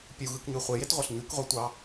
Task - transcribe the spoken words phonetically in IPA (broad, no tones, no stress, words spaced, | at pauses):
pʲuɣɯkɲy χʷejetʁʷɑɬ ɲykʁʷetʷɑ